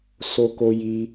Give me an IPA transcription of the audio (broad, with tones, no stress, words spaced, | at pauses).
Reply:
so˦ko˦ji˦